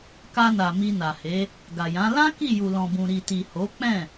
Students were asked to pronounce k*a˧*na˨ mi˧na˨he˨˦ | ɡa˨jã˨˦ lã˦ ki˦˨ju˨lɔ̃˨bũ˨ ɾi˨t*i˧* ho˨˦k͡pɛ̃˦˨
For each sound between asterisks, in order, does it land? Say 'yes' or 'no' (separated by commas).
yes, no